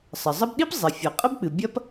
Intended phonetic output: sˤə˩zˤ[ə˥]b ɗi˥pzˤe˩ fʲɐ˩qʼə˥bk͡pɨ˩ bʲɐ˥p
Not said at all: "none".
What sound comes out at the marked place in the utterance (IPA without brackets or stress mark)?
ə˥